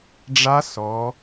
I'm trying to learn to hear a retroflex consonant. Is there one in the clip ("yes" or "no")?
yes